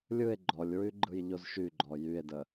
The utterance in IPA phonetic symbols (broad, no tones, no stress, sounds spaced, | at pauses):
lʲ ɯ e̯ ɡ͡ǃ ɔ lʲ ɹ y ɡ͡ǃ ɯ j ʎ o z ʃ y ɡ͡ǃ ɔ j y e̯ d ə